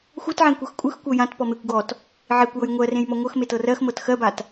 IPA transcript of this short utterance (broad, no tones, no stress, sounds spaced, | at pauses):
xʷ ɤ t ʕ ẽ kʷ ɤ x kʷʼ ɯ x kʷ ɤ j ã t p ɔ m e kʷ ɡ ɔ t | ʕ e kʷ j ɤ j ŋʷ ɜ r ẽ j m ɔ ŋʷ ɤ x m e t ɤ r ɜ x m ɤ t x ɜ b a t